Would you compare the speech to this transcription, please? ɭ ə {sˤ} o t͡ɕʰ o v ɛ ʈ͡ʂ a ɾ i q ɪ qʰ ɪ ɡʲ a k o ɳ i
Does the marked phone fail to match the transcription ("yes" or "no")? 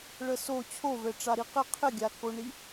yes